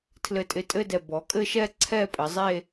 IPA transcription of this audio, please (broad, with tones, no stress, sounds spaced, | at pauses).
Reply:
tʰ l ɘ˧˩ tʼ ɪ˧˩ tʼ ɘ˥˧ d ɛ˧˩ b ɔ˩˧ kʼ ɘ˥˧ ʃ ɛ˥˧ ǀʰ ɛ˥˧ pʼ ɘ˩˧ zˤ e˥˧